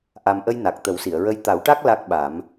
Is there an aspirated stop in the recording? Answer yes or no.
no